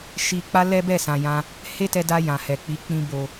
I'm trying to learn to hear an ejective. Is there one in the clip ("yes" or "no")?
no